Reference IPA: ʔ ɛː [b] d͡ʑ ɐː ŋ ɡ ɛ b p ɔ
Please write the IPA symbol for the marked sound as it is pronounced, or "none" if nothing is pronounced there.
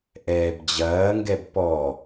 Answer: b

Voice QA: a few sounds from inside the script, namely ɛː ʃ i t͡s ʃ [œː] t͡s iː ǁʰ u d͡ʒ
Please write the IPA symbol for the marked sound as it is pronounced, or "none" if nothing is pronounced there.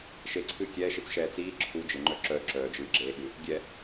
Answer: ɛː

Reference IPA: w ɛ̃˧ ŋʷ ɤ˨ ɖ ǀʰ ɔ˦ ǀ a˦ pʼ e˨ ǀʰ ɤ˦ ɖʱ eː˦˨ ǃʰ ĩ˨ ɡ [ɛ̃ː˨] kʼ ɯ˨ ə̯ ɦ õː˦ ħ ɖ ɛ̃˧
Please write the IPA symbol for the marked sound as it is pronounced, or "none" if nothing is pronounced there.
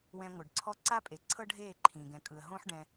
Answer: ɛ̃˨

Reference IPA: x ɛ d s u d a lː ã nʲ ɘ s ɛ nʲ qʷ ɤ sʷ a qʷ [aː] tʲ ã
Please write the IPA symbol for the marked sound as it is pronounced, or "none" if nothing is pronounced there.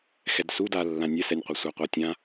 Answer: a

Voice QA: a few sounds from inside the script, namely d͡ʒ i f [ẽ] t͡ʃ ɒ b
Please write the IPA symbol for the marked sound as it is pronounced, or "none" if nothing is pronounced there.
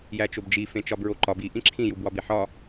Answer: ẽ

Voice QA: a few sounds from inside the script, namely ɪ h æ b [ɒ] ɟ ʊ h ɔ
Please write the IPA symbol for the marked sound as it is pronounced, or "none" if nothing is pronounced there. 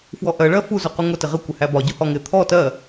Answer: ɒ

